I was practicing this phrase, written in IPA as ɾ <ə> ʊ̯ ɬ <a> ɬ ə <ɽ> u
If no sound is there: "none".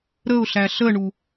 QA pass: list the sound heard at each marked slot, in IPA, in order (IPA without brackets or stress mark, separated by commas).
ə, æ, ɳ